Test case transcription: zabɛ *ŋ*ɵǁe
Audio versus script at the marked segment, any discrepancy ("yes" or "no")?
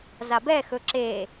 yes